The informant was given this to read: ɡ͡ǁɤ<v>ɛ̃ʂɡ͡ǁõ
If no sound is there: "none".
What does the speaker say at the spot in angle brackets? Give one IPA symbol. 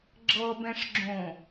b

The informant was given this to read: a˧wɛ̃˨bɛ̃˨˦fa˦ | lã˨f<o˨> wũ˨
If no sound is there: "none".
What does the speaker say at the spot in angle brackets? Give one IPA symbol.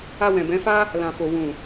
o˨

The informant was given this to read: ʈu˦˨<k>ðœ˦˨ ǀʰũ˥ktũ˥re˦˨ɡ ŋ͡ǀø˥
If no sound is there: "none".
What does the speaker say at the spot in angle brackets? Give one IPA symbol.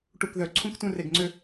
k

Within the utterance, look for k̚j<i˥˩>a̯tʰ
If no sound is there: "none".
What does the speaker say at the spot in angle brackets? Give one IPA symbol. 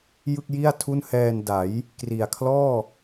i˥˩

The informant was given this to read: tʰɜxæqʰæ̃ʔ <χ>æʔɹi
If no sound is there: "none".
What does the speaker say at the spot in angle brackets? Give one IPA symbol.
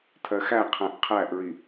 qʰ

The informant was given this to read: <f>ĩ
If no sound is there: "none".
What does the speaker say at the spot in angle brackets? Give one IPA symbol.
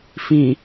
f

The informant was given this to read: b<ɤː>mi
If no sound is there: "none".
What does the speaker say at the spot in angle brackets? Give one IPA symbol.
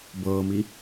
ɤː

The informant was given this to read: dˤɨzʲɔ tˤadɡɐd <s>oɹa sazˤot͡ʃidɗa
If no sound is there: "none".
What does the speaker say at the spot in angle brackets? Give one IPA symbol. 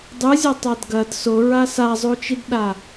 s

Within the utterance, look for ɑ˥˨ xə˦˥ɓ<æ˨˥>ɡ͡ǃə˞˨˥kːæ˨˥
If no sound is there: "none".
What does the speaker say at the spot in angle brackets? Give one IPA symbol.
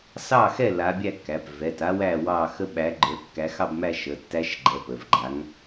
æ˨˥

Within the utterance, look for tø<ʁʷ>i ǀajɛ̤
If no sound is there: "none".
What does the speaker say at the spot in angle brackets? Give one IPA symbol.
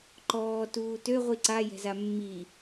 ʁʷ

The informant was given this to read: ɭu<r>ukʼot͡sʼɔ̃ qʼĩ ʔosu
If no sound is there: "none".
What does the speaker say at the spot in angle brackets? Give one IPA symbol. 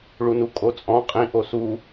n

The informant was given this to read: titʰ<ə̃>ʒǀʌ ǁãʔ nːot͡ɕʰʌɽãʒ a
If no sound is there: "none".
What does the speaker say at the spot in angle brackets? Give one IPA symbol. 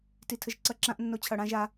ə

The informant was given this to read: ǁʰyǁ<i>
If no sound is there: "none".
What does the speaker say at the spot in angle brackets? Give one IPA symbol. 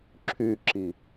i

